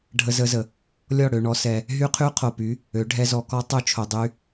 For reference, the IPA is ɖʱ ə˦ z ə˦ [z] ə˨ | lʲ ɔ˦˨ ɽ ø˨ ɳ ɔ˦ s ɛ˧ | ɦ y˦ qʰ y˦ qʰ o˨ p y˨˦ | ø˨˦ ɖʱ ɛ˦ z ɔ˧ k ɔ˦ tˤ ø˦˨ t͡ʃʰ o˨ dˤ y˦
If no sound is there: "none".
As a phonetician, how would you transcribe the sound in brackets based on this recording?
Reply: z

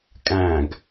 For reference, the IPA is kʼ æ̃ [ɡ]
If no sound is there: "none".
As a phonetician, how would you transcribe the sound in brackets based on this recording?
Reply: ɡ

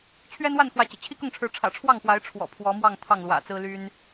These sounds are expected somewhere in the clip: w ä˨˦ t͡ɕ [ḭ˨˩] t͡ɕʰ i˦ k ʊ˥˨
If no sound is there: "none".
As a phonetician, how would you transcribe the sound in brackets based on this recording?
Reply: ḭ˨˩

